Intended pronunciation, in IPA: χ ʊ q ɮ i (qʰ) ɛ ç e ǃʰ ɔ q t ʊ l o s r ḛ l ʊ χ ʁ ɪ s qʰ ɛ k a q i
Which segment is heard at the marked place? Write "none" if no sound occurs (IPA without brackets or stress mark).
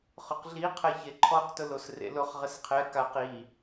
qʰ